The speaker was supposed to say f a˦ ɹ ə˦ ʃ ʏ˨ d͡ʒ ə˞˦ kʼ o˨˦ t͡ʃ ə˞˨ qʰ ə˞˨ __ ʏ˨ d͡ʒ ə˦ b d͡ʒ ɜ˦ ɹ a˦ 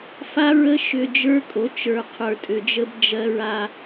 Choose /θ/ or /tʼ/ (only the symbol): tʼ